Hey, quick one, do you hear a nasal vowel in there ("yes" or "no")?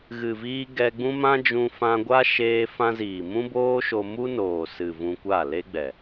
yes